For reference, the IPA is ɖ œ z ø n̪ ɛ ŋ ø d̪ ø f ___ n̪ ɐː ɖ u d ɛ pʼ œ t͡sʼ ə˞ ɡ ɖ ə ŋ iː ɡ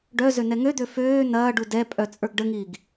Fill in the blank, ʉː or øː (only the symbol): øː